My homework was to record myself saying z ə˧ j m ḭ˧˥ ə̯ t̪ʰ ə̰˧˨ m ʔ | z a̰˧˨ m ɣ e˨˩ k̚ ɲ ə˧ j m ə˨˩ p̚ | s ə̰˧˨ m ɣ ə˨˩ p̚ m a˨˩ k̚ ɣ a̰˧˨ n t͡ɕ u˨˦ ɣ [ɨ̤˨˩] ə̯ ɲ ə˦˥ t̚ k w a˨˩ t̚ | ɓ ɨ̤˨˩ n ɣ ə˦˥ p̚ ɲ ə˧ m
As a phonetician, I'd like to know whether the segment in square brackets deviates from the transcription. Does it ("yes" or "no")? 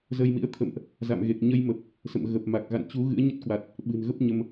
yes